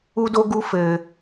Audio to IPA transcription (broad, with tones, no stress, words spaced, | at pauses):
u˦do˦ɡu˦ fɘ˧